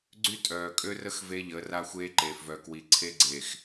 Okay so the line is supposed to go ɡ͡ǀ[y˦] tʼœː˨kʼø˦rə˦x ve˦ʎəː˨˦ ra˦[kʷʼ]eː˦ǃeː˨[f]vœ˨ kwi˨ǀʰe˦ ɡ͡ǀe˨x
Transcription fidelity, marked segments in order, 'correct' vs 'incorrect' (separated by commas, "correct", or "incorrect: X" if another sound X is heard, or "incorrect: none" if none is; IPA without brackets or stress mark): correct, incorrect: xʷ, correct